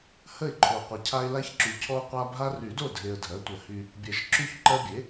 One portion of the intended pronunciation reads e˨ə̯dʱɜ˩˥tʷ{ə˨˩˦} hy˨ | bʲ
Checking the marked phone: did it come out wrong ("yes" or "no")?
no